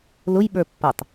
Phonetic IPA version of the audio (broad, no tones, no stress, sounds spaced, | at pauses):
l ʊ j ɓ ə˞ pː ʌ tˤ